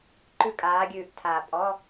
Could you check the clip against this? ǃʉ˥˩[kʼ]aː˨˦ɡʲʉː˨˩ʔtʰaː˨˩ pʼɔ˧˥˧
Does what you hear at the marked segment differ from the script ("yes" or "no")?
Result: no